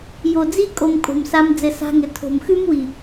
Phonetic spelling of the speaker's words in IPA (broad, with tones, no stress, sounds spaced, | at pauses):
j o˨ d͡z i˦ kʼ o˧ m kʼ o̤˨ m s a˧ m d͡z ɘ˨ s a̤˧ ŋ ɘ˨ tʰ o̤˨ m x ʉ˦ m w i˨